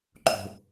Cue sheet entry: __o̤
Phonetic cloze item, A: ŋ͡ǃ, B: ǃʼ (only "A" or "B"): B